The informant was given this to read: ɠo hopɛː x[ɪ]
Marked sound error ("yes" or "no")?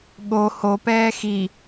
yes